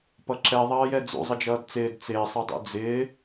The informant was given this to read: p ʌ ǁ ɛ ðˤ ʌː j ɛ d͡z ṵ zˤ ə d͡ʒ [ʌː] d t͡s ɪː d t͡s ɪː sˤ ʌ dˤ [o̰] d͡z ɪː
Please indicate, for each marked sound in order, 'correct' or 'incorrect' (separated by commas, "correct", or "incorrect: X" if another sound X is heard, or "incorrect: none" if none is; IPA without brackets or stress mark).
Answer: correct, incorrect: ṵ